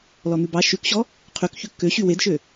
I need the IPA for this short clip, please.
l ɔ n̪ ʉ b ɑ ʃ ʉ k ɕ ɔ | qʰ y k ç ʉ kː ø ɕ y w e d ʃ ø

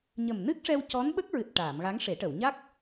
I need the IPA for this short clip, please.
ɲ ə˨˩ m n ɨ˦˥ k̚ ʂ ɛ˧ w c ɔ˧˥ n ɓ ə˦˥ k̚ ɹ ɨ˨˩ t̚ ʈ aː˨˩˨ m ɣ a˧˥ ŋ ʂ e˨˩˦ ʈ ə˨˩˨ w ɲ a˦˥ k̚

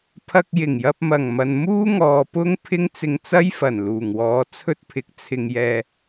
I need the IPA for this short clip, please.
pʰ ɐ˧ k̚ j ɪ˨˩ ŋ j ɐ˧ p̚ m ɐ˨˩ ŋ m ɐ˨ n m uː˥ ŋ ɔː˨ p ʊ˥ ŋ pʰ ɪ˥ ŋ t͡s ɪ˧ ŋ t͡s ɐ˥ j f ɐ˨˩ n l uː˨˩ ŋ w ɔː˨˥ t͡sʰ ɵ˥ t̚ pʰ ɪ˨˥ k̚ t͡sʰ ɪ˧ ŋ j ɛː˧

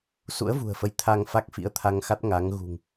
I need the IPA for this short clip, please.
s ṵ˧˥ ə̯ v ṳ˨˩ ə̯ f ə˨˦ j t̪ʰ a˧ ŋ f a˦˥ k̚ f ḭ˧˥ ə̯ t̪ʰ a˧ ŋ x a˦˥ t̚ ŋ a˨˦ ŋ ɣ ṳ˨˩ ŋ

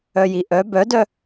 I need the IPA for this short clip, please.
œ j i ʔ œ b œ d œ

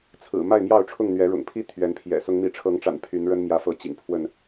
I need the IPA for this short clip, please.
t͡sʰ ɹ̩˨˩ m a˥˨ ɪ̯ m j ɑ˥˨ ʊ̯ ʈ͡ʂʰ ʊ˥˨ ŋ n̪ ɥ ɛ˨˦ ɻ ʊ̰˨˩ ŋ pʰ i˦ t̪ʰ ɥ ɛ˨˦ n pʰ j ɛ̰˨˩ s ʊ˨˦ ŋ m i˨˦ ʈ͡ʂʰ ɤ˨˦ ŋ ʈ͡ʂ a̰˨˩ n pʰ y˨˦ n ɻ ə˦ n m j ä˨˦ f ɤ˨˦ t͡ɕ ḭ˨˩ ŋ pʰ w ə˥˨ n

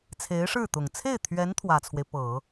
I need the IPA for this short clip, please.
t͡sʰ e˧˥ ɪ̯ ʂ ɻ̩˥˩ t̪ ʊ˨˩ ŋ t͡sʰ e˥˩ ɪ̯ t̪ʰ ɥ ɛ˧˥ n t̪ʰ w ä˨˩ t͡sʰ w e˦ ɪ̯ p ɤ˨˩˦

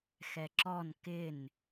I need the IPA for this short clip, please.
x ɛ ǁ ɔ n k ɪ n

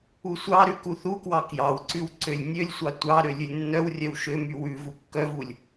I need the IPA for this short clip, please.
u sʷ ɑ ɾ ʉ k u θ u k w ɑ k j ɑ w ǀ ʉ w ǀ ø lʲ nʲ ø lʲ sʷ ɑ tʷ ɑ ɾ ø lʲ ʉ lʲ nː œ w rʲ œ w ʃ ø m y w ʉ v u kː œ v u lʲ

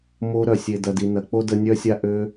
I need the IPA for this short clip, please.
m o˧ ɾ œ˨ sʲ e˨ d ɐ˨ d i˨ n ɐ˨ k͡p o˦ d ə˧ nʲ œ˦ sʲ a˦ ʔ ø˧

